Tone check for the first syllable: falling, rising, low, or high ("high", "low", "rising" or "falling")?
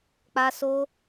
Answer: high